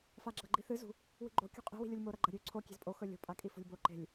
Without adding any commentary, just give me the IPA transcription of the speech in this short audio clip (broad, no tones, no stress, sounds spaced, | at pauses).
f a ɡ͡ǁ ɐ ɡ͡ǃ i θ ɨ z ṳ | w i̤ ɡ͡ǃ o̤ kʲ ṳ qʼ e̤ w i̤ lʲ u lʲ m o ɾ ɐ ɡ͡ǃ ɐ ɾʲ ʉ ǀʰ o kʲ e̤ z pʼ o x ɵ lʲ o̤ pʼ a kʼ i f o̤ lʲ b o ǃ e̤ lʲ